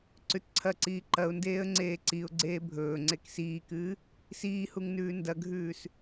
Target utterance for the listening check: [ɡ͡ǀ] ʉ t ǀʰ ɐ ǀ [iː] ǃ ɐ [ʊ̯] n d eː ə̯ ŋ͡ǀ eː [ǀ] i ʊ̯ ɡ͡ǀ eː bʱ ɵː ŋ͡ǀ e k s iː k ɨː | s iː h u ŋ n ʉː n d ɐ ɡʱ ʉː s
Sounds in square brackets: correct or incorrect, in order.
incorrect, correct, correct, correct

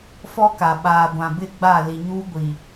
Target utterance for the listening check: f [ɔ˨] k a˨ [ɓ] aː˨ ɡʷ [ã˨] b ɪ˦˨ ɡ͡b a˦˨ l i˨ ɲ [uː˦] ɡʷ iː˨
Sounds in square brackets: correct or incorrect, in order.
incorrect, correct, correct, correct

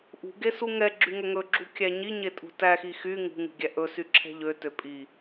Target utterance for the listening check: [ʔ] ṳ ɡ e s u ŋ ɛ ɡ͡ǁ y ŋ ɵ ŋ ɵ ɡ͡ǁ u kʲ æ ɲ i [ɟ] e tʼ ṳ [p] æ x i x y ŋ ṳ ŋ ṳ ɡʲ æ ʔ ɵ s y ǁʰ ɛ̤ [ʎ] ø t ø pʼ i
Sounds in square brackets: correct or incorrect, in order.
correct, incorrect, incorrect, correct

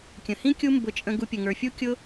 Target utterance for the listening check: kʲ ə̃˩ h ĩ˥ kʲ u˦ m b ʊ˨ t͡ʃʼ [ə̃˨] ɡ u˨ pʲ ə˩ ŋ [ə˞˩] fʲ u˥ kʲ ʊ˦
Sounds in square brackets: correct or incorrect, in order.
correct, correct

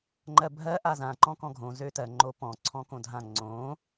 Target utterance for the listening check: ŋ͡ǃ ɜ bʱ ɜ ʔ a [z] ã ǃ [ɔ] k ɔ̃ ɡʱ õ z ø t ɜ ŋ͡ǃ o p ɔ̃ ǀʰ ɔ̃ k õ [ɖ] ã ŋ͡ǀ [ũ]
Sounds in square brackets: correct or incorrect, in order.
correct, incorrect, incorrect, incorrect

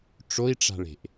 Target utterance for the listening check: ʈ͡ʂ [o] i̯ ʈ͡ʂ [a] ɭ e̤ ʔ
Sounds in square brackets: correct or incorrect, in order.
correct, incorrect

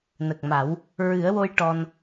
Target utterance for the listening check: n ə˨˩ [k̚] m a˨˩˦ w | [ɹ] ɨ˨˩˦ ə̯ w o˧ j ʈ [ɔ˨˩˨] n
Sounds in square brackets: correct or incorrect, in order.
correct, correct, incorrect

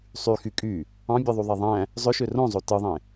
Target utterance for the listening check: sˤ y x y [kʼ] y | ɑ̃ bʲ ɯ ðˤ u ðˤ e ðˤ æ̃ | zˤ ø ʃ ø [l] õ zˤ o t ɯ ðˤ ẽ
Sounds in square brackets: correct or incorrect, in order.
correct, incorrect

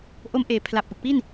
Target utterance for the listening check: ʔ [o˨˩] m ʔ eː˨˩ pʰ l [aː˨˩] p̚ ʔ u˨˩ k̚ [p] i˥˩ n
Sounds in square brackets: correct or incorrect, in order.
incorrect, incorrect, correct

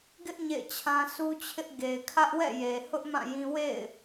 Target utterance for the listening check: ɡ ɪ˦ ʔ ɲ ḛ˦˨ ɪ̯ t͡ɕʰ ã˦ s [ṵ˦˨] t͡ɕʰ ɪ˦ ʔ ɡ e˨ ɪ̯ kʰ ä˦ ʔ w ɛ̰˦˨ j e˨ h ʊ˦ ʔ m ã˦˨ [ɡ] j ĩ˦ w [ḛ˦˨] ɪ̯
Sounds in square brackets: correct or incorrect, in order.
incorrect, incorrect, correct

